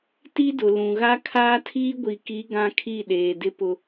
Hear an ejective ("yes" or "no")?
no